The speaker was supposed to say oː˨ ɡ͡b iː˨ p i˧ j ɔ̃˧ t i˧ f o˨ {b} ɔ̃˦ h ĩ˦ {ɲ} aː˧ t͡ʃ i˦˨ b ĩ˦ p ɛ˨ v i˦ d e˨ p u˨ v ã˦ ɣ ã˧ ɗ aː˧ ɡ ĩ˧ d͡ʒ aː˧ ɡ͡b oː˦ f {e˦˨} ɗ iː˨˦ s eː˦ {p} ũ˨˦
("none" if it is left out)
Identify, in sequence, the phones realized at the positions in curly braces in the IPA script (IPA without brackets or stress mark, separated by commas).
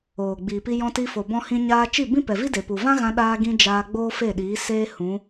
b, ɲ, e˦˨, h